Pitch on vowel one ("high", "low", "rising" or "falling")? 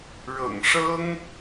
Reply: low